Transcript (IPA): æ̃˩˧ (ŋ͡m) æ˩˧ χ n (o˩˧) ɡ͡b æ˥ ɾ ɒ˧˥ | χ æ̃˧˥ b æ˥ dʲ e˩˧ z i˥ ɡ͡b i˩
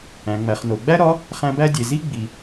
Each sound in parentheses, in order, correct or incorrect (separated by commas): correct, correct